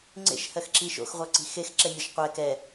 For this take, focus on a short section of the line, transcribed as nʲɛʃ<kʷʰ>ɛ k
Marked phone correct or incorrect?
incorrect